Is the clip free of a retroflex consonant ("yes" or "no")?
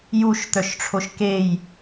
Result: no